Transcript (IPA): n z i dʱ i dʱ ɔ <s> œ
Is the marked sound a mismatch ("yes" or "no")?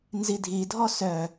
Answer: no